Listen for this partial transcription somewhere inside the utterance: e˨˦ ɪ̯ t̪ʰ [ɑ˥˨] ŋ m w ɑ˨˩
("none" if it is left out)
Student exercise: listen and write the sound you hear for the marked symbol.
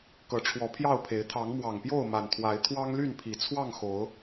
ɑ˨˦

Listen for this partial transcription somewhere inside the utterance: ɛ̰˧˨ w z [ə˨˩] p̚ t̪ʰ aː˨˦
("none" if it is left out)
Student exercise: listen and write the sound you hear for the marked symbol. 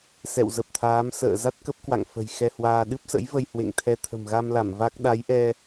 ə˨˩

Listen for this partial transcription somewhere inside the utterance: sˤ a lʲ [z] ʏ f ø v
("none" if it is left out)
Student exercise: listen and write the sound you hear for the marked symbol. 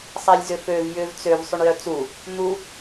z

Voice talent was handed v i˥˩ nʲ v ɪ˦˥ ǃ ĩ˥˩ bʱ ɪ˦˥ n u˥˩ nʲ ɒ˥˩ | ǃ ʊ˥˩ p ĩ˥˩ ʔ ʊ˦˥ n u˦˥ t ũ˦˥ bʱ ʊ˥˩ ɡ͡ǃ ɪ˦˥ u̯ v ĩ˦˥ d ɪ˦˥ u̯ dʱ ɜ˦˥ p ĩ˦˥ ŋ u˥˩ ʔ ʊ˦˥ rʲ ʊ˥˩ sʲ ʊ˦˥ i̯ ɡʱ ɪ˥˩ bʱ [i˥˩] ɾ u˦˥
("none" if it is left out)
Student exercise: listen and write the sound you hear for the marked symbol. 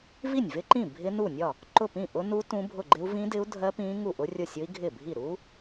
i˥˩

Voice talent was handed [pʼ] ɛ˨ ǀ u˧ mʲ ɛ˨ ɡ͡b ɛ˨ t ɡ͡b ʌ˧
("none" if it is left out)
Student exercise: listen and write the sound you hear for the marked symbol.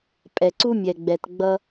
pʼ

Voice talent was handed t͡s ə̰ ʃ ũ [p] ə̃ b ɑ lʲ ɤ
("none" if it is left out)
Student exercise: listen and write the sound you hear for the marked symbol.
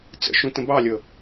t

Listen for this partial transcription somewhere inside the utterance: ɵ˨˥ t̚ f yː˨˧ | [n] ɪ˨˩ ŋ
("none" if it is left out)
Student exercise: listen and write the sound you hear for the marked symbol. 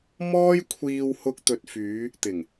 t̪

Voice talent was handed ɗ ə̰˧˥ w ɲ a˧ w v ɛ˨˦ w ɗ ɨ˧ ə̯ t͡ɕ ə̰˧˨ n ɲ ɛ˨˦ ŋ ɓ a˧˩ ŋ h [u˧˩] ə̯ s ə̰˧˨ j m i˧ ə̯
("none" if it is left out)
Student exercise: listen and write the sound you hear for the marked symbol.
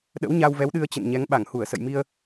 u˧˩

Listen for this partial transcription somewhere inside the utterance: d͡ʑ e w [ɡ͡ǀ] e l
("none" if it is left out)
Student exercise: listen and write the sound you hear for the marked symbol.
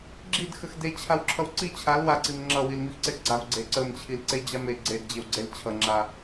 ɡ͡ǀ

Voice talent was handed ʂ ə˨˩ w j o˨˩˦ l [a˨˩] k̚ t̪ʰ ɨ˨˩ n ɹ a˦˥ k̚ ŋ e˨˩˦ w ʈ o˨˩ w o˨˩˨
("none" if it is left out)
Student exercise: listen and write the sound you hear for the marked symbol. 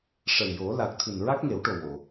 a˨˩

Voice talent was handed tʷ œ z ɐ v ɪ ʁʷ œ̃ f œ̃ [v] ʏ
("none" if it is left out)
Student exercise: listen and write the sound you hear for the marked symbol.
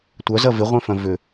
v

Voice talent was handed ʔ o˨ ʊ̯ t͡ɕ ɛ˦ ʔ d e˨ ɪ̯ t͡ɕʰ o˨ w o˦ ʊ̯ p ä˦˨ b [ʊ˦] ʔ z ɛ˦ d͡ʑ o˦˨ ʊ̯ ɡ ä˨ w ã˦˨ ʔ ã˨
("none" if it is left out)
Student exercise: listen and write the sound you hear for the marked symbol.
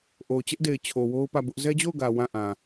ʊ˦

